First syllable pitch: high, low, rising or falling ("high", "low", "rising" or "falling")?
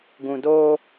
low